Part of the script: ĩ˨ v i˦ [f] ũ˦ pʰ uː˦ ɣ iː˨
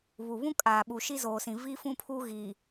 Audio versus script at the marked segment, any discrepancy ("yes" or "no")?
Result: no